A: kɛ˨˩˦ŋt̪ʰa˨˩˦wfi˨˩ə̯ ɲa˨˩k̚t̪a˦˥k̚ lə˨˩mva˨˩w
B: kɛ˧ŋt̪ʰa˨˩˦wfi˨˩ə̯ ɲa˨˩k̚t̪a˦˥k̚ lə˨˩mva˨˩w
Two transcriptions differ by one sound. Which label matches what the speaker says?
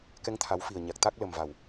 B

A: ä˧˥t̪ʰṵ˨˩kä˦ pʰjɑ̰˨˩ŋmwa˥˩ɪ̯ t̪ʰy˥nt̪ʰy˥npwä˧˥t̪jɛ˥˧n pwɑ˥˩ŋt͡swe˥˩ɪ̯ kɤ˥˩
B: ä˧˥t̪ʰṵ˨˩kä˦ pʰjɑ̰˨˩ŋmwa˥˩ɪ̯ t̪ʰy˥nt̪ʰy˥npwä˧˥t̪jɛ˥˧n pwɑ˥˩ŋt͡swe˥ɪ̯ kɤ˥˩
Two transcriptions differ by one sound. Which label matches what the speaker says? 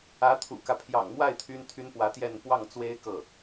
B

